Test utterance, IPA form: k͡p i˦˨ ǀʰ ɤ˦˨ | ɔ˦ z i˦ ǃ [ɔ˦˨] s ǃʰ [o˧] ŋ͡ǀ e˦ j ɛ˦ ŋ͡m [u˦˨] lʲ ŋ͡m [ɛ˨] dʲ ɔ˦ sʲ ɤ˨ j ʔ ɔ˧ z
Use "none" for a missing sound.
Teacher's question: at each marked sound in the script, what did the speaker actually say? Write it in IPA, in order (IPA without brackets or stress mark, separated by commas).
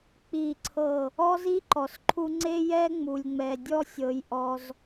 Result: ɔ˨, u˧, u˨, ɛ˨